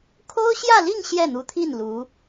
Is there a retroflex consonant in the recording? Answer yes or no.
no